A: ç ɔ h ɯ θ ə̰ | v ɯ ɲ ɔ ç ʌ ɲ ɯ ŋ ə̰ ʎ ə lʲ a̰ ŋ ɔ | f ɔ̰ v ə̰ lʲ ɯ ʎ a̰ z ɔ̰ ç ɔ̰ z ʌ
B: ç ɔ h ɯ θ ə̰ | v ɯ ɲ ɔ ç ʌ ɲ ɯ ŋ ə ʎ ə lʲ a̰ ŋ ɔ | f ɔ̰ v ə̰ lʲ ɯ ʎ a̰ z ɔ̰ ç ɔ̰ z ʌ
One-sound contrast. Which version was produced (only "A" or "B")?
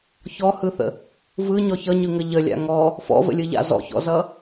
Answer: B